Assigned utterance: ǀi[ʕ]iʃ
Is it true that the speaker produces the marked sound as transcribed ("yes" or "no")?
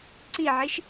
yes